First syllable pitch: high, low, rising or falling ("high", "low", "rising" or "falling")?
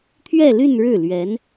falling